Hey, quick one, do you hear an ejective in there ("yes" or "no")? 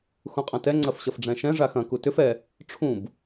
yes